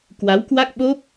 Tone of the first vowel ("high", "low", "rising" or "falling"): rising